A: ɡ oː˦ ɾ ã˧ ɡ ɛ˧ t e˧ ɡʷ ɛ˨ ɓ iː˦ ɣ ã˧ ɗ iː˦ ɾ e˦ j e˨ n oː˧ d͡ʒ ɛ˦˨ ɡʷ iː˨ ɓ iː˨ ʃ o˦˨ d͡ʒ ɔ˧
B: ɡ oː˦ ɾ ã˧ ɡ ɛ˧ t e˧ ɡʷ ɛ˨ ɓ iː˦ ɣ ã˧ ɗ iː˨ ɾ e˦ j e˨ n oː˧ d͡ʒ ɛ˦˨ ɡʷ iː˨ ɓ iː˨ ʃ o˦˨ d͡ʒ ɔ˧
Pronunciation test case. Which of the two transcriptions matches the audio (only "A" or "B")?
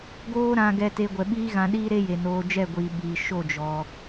A